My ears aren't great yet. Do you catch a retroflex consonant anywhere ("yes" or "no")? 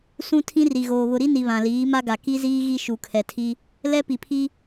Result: no